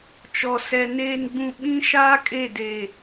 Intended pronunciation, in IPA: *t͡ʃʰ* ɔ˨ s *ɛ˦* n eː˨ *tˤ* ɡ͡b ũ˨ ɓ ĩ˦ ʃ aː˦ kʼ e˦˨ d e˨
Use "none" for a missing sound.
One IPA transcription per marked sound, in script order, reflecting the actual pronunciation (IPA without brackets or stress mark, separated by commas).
t͡ʃ, ɛ˨, n